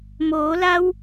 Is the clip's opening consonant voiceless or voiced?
voiced